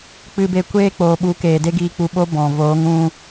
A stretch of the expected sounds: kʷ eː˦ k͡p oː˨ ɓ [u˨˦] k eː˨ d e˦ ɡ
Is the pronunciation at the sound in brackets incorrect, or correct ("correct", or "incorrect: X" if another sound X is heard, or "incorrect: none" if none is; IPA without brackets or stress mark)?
correct